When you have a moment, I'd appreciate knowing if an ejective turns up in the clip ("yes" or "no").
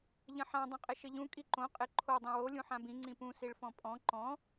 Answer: yes